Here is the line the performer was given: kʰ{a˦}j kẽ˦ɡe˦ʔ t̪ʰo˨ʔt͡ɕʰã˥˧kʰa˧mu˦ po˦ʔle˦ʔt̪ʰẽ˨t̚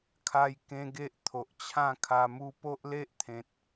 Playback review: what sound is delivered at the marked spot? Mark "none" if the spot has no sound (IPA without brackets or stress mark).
a˦